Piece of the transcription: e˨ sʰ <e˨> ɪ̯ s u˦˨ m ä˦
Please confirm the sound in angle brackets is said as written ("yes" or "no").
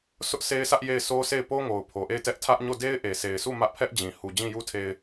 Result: yes